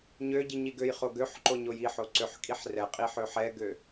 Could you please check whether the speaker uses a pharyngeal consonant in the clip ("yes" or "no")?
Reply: yes